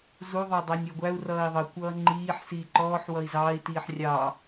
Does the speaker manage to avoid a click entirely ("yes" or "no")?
no